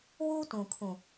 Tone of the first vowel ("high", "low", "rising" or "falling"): high